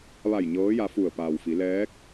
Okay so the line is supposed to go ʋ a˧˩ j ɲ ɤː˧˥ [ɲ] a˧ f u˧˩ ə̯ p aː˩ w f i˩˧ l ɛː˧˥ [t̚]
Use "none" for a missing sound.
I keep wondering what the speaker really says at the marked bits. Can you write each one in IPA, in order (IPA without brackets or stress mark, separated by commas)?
j, k̚